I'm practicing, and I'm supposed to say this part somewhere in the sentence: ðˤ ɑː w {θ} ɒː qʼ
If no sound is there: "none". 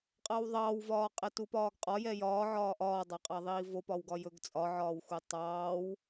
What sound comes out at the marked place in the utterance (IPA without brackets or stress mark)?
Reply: v